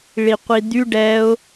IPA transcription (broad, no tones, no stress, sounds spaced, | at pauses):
ɭ i qʷ i d̪ y ɖ ɛ ʊ̯